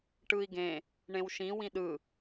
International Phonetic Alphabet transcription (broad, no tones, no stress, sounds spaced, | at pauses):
ʈ ɯ i̯ ɡ ẽ | ɳ ẽ w ʃ ĩ w ĩ ɗ ɯ